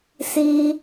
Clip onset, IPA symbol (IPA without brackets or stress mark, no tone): s